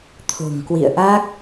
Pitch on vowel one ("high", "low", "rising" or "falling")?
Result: low